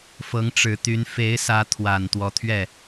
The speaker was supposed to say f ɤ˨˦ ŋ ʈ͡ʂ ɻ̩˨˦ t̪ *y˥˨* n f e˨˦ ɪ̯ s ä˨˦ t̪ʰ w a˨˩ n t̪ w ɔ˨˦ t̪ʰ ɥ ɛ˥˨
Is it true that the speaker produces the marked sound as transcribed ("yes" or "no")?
no